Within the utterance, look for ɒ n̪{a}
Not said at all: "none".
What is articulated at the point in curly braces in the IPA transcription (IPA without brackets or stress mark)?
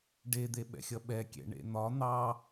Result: ɑ